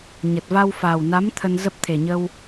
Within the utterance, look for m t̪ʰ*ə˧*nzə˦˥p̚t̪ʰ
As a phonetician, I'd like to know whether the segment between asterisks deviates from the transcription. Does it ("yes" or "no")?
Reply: no